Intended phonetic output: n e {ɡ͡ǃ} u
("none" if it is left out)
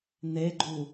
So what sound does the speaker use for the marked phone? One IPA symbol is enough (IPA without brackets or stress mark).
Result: ɡ͡ǃ